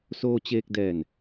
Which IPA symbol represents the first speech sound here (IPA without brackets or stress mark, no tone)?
s